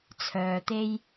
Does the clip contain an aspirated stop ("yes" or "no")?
yes